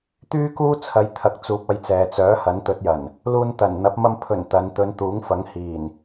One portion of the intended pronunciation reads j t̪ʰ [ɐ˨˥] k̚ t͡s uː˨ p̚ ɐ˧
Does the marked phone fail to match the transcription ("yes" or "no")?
yes